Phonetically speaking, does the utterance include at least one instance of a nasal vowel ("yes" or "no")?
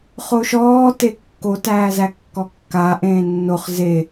yes